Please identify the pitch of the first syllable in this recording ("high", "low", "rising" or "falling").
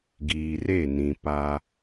low